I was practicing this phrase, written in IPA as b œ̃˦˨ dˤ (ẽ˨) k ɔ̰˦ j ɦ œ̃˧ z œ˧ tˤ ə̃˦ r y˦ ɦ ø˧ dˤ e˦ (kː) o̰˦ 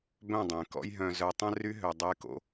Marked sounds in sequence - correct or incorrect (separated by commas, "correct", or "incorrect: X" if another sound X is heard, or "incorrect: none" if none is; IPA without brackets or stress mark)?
correct, incorrect: k